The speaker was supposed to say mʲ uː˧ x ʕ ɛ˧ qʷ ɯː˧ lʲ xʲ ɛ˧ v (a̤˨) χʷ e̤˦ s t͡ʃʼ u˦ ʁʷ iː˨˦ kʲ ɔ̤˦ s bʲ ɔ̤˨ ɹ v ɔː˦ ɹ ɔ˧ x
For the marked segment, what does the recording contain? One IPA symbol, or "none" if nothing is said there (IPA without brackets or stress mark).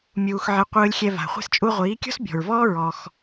a̤˨